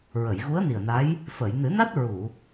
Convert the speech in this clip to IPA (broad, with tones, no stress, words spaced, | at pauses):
ɹə˨˩˨jɣu˧˥ə̯ni˨˩ə̯na˧˥j | fə˨˩˨j nɨ˨˩˦na˦˥t̚ ɹu˨˩˨